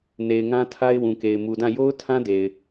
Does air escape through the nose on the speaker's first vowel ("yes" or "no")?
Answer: no